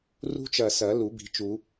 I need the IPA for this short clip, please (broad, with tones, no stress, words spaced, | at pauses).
rṳ˦˥t͡ʃɐ˧˩ sɐ˨˩˦lu˨˩˦ bi̤˨˥ t͡ʃu˨˩˦